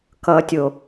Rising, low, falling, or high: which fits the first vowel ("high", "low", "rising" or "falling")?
low